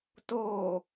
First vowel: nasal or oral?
oral